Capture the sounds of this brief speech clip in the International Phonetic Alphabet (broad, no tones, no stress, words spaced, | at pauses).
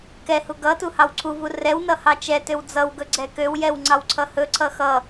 kɛhu ɡʌ tuhɑwǀʰuvu rɛwnʌ hɑt͡ʃɛtøw d͡zʌwɡɵ ɡ͡ǀɛkøwjɛw ŋ͡ǀɑwǀʰʌhɵǀʰʌ xʌ